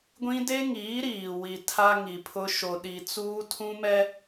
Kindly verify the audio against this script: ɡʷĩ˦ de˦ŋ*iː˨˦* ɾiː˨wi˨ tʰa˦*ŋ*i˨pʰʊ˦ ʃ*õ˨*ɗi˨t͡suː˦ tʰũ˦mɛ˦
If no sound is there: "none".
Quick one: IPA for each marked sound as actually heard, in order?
iː˨˦, ŋ, o˨

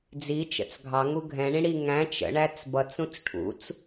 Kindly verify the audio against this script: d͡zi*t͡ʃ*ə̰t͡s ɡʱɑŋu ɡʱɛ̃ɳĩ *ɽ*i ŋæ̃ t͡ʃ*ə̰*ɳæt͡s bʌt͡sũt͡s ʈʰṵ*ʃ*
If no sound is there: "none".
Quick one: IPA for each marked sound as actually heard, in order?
t͡ʃ, ɽ, ə̰, t͡s

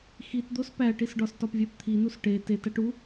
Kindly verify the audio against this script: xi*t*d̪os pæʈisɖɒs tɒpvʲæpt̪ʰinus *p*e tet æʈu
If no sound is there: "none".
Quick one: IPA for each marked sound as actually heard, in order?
t, ʈ

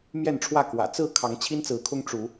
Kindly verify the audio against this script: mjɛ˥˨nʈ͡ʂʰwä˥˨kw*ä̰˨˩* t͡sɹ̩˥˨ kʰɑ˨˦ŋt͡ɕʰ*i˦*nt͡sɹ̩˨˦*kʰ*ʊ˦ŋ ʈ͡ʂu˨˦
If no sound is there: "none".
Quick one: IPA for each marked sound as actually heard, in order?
ä̰˨˩, i˦, kʰ

